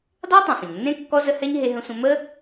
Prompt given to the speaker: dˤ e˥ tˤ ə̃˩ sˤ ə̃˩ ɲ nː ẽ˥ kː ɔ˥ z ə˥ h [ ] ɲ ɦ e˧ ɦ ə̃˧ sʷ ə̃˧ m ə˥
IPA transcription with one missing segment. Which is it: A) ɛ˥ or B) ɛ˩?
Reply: A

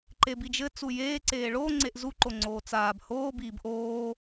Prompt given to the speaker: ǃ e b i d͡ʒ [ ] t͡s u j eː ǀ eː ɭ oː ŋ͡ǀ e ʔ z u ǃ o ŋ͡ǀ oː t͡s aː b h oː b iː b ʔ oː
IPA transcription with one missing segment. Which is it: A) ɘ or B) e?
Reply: A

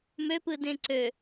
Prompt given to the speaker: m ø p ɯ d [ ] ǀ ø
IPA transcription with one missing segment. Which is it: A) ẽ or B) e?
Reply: A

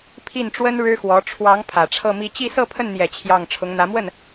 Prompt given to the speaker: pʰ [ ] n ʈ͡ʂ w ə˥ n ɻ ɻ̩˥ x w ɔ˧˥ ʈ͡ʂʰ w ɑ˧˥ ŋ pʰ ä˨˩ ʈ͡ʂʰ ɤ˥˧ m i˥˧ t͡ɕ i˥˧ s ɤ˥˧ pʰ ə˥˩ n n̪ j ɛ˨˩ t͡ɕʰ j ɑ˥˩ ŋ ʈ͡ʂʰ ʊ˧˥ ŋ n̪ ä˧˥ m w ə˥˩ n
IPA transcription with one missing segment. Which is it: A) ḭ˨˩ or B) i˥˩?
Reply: B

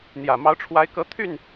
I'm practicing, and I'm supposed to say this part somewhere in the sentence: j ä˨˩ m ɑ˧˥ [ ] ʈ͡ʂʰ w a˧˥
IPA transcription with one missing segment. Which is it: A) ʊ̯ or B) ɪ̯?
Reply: A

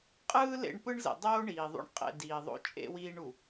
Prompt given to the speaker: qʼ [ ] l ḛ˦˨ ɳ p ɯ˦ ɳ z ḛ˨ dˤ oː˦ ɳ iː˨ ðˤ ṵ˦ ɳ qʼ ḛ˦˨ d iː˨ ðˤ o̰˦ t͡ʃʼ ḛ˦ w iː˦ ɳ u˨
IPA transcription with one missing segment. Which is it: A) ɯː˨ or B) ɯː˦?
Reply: B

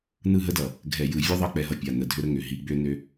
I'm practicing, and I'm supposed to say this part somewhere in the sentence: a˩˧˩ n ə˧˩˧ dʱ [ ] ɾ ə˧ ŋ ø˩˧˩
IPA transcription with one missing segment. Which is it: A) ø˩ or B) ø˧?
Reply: B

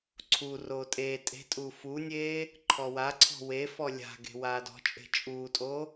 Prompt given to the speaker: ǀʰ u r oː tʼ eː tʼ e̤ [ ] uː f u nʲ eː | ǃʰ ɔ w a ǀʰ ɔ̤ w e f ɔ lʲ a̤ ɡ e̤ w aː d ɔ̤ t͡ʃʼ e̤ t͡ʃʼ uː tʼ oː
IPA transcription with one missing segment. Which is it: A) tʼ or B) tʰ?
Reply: A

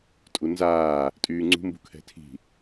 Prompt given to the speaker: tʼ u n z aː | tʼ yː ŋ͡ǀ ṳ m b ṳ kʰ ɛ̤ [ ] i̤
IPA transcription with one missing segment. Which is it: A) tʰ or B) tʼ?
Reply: A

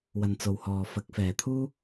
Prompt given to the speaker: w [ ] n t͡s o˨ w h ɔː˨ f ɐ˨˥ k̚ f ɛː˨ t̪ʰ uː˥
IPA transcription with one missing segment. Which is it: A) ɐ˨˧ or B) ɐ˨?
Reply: B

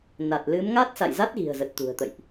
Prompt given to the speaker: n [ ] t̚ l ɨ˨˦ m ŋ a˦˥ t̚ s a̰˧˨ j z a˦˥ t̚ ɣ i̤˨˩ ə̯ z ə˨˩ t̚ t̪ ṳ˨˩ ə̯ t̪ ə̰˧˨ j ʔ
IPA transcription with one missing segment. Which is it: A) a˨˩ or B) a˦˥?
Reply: A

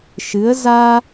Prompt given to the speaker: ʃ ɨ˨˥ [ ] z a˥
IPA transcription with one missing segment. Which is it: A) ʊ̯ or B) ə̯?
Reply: B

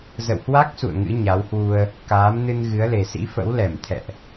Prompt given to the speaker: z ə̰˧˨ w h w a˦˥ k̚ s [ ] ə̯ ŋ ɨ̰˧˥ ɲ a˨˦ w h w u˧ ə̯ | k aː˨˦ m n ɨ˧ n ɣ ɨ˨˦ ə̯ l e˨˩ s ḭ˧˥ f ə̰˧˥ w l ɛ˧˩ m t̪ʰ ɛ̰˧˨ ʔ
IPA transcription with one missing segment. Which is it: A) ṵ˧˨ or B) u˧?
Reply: A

